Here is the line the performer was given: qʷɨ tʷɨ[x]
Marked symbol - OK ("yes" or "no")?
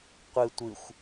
no